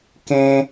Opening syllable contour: high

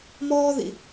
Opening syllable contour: high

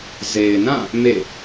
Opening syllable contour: low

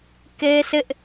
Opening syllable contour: high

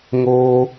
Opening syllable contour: high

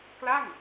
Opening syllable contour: falling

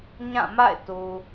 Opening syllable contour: falling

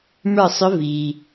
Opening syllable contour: falling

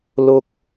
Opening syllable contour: high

